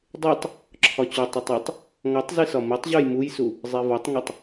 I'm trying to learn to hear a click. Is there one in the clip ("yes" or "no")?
yes